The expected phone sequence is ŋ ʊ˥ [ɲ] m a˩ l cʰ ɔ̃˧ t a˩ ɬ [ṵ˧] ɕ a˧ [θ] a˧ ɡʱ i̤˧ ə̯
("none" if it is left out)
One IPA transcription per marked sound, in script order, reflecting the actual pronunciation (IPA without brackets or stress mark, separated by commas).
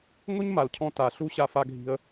ɲ, u˧, f